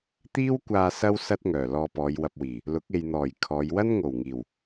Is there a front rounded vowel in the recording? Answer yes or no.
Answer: yes